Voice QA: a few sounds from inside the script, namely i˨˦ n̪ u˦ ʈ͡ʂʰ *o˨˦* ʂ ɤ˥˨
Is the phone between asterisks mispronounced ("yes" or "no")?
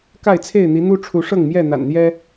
yes